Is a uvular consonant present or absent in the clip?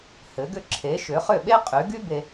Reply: present